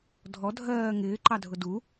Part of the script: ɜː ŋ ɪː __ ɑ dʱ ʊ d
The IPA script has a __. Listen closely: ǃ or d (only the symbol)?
ǃ